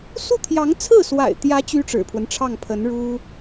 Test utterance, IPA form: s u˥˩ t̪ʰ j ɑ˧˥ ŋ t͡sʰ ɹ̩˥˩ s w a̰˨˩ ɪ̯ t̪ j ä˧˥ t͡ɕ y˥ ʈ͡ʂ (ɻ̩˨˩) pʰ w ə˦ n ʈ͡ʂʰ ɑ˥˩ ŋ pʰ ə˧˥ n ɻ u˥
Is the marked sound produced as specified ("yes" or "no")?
yes